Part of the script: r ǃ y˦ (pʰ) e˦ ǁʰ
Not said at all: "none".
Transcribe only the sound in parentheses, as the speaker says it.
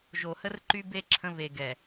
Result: b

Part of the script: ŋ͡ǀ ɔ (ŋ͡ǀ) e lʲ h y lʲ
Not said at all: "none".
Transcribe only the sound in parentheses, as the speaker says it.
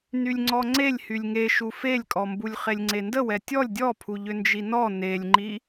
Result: ŋ͡ǀ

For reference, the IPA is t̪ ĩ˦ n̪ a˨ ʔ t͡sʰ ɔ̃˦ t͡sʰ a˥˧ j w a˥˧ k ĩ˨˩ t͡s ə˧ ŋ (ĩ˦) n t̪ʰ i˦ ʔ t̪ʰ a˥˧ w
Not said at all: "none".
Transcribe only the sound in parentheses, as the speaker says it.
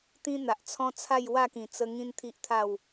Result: ĩ˦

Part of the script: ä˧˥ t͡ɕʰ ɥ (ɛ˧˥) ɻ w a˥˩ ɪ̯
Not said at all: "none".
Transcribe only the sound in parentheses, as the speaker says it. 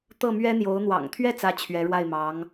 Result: ɛ˧˥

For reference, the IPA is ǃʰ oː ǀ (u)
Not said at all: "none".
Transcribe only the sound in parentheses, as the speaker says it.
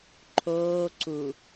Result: u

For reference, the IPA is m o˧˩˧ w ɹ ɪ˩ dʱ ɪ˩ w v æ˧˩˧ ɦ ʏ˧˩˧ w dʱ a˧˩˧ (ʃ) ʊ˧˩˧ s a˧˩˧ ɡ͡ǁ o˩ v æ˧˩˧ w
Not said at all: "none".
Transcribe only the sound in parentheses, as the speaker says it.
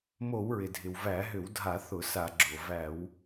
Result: θ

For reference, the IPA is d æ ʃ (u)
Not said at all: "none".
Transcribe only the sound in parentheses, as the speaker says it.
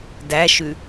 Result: ʉ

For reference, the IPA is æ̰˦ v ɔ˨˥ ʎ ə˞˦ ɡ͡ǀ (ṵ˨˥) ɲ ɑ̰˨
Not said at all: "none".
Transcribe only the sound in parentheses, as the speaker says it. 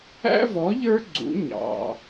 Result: ṵ˨˥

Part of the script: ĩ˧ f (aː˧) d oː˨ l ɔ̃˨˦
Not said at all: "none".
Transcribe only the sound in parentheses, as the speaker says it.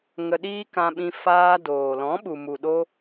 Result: aː˧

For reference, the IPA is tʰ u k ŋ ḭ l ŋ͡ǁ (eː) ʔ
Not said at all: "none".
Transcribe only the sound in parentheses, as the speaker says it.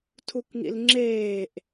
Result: eː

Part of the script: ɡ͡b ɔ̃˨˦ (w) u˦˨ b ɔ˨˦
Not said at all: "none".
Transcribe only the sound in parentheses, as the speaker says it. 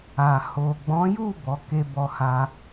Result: j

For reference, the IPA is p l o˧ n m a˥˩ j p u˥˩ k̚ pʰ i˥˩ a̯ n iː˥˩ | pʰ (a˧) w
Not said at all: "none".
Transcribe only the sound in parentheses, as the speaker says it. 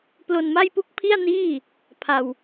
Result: a˧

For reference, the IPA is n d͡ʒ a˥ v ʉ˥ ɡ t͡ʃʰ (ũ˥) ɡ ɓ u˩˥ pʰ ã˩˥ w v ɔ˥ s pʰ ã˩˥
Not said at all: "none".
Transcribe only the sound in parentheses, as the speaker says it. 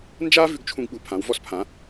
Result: ũ˥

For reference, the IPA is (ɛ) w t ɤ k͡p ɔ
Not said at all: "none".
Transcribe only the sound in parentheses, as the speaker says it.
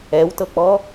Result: ɛ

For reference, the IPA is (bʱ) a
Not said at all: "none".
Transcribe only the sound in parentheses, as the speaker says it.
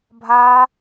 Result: bʱ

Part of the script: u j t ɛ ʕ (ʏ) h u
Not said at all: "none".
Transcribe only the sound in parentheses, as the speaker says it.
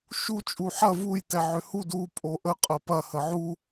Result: ʏ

